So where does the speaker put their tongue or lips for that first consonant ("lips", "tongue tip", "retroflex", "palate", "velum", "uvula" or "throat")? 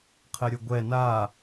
uvula